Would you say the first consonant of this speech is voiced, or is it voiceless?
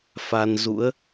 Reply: voiceless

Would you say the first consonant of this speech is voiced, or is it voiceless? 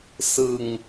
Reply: voiceless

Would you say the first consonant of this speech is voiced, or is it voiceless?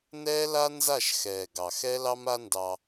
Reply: voiced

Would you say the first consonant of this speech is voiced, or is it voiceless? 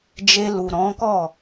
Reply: voiced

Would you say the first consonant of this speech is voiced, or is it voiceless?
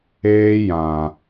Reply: voiced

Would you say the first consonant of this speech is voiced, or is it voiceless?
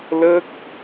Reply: voiced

